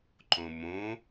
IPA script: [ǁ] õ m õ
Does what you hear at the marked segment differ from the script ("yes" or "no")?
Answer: yes